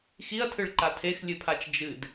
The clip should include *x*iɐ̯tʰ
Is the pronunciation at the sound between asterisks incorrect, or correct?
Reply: correct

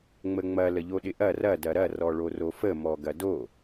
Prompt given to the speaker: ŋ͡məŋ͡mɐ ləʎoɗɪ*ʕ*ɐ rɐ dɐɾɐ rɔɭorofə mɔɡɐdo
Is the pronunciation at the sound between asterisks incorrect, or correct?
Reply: incorrect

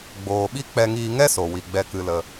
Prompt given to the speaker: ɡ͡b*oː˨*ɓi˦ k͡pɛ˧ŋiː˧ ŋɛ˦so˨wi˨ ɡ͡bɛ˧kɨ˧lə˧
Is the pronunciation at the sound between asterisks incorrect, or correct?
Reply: correct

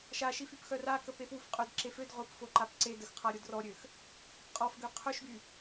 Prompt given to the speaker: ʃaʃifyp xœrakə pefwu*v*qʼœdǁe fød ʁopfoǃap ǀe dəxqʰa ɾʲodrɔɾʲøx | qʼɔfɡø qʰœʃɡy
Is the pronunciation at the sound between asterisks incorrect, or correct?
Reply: incorrect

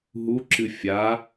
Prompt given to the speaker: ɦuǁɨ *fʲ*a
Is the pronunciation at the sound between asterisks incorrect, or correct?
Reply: correct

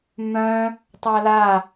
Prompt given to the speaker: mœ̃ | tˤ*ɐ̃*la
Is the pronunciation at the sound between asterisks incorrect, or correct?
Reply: incorrect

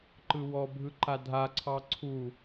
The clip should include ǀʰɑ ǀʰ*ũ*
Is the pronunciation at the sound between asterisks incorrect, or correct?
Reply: incorrect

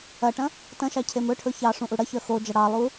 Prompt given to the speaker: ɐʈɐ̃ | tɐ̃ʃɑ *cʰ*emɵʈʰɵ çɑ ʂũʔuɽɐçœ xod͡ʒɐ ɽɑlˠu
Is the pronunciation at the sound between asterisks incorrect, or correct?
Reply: correct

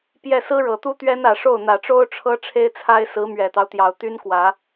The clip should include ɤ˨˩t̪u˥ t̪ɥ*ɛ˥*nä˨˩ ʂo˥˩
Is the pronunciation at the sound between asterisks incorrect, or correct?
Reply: correct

